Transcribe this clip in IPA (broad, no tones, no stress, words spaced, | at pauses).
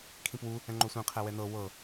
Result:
kʰĩpwu | ɛ̃ŋ͡ǃosʷĩ qʰɛwɛnɤ wɤ